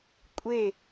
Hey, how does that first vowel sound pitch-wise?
falling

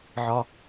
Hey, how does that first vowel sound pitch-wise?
low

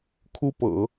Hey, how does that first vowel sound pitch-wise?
high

